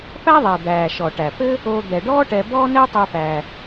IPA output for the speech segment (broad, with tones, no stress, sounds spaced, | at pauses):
p æ˥ ðˤ ɛ˩ d̪ æː˩ ʃ ɔ˩ ʈ æ˩ p ɘ˦ | o˨ d̪ ɛ˩ ɖ ɔː˥ ʈ ɛ˨ b ɔː˥ n ɛ˥ tˤ y˨ p æ˩